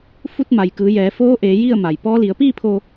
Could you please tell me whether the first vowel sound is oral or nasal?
oral